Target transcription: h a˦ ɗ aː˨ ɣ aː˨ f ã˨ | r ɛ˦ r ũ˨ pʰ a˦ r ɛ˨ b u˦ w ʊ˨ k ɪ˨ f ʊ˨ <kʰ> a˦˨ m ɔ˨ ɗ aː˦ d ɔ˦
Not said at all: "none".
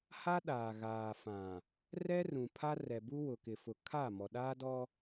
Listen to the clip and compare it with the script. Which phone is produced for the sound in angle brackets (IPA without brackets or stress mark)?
kʰ